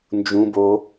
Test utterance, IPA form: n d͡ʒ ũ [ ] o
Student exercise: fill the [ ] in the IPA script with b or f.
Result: b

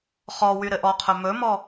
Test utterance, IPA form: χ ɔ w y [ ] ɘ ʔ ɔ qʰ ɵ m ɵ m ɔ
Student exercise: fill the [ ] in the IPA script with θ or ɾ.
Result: ɾ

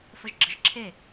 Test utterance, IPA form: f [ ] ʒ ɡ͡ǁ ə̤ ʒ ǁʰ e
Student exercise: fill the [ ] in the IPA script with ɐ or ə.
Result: ə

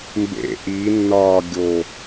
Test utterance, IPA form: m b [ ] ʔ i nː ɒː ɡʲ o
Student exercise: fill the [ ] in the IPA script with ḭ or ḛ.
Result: ḛ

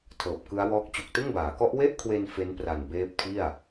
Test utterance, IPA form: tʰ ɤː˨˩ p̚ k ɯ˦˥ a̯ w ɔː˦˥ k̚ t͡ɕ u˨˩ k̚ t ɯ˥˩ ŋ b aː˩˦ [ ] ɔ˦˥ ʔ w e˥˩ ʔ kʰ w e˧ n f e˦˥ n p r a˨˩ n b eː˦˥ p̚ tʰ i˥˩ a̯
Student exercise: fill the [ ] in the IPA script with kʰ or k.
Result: k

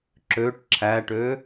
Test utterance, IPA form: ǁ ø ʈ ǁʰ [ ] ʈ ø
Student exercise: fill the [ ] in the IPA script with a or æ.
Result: æ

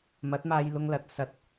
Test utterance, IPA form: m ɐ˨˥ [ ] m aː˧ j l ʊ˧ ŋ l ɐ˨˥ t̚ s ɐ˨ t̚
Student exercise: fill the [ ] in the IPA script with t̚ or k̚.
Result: t̚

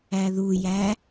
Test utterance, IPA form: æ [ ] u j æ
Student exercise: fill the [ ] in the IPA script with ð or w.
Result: ð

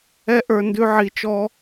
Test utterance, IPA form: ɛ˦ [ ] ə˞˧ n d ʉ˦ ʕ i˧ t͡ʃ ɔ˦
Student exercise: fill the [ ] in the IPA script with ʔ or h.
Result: ʔ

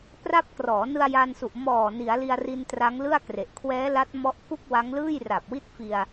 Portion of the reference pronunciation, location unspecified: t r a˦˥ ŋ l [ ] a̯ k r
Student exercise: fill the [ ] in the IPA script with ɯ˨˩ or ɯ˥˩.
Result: ɯ˥˩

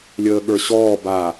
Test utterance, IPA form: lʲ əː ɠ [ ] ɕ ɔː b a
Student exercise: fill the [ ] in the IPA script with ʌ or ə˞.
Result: ə˞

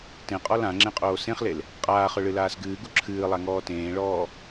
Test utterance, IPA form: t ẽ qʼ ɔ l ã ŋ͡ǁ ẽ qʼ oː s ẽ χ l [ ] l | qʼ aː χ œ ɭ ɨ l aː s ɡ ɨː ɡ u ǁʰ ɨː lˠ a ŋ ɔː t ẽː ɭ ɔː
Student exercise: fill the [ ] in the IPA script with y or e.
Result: e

